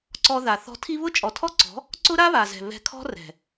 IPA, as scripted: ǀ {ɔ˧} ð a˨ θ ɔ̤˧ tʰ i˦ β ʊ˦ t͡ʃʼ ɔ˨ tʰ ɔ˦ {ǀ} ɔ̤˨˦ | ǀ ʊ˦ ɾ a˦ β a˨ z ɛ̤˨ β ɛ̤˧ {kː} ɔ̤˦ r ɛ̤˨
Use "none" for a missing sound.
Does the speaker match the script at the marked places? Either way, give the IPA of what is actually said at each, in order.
ɔ˧, ǀ, kʰ

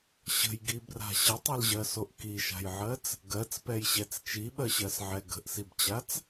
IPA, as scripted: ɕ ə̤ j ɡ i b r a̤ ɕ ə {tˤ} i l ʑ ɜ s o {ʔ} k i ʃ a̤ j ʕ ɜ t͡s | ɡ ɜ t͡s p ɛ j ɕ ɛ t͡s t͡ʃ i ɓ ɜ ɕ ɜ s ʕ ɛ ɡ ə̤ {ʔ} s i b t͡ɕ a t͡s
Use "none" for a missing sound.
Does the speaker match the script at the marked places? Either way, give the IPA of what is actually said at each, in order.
tˤ, ʔ, ʔ

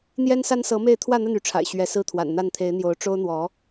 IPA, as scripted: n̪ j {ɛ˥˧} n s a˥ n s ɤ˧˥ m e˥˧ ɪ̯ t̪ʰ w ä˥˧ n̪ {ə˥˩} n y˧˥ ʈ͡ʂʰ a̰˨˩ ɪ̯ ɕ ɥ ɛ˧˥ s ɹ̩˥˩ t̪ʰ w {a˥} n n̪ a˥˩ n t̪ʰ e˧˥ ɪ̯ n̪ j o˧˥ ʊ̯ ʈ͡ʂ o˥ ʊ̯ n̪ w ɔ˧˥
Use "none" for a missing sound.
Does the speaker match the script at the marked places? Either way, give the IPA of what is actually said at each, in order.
ɛ˥, ə˥˩, a̰˨˩

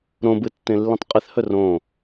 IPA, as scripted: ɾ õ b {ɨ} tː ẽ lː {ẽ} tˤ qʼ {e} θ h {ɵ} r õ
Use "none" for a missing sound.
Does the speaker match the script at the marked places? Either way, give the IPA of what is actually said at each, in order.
ɨ, ĩ, e, ɵ

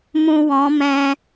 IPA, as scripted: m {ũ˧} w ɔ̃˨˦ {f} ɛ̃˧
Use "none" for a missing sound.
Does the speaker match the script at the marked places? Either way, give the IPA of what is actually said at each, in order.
ũ˧, m

